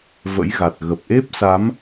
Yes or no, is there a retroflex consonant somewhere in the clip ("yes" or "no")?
no